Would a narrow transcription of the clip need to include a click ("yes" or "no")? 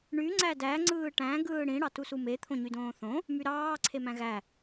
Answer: yes